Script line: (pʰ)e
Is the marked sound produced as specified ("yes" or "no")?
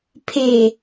yes